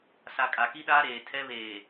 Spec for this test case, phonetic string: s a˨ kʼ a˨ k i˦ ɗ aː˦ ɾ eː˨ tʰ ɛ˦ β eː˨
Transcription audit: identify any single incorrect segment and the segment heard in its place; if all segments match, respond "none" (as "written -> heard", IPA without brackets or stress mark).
none